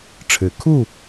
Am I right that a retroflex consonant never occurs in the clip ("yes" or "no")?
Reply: no